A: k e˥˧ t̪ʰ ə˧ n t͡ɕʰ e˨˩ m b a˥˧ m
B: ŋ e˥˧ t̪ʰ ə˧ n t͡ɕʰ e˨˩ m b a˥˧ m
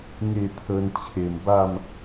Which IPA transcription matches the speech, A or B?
B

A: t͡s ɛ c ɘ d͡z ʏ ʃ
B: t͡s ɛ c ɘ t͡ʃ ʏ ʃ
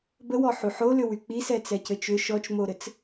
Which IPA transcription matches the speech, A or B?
B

